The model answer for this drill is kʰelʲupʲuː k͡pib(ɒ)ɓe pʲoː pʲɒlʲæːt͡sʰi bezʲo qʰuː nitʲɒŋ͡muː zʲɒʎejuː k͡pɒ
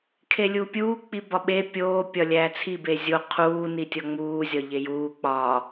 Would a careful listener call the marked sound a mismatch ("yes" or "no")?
no